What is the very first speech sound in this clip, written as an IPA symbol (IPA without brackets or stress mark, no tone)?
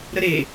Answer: ɾ